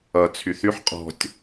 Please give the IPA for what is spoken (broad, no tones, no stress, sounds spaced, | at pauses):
ʌ t͡sʰ y θ y ħ qʼ ɔ̤ tʲ